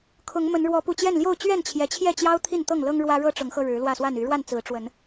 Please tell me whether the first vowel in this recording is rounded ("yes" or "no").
yes